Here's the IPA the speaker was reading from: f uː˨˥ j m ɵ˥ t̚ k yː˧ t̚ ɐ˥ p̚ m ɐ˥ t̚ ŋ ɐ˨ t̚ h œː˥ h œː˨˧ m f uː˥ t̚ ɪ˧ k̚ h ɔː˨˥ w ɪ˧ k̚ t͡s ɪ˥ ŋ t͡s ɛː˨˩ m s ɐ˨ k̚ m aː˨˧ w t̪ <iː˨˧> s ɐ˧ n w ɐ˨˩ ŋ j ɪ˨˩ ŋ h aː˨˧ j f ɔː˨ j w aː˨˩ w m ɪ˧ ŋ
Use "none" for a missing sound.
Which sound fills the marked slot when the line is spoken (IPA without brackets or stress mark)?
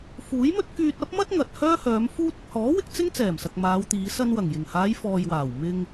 iː˨˧